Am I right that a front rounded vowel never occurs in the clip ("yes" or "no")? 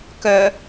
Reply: no